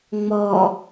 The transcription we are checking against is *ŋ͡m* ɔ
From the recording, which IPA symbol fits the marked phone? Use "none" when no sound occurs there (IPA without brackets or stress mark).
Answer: ŋ͡m